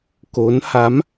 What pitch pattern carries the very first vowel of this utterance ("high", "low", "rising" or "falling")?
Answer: rising